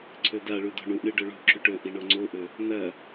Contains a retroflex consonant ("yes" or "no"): yes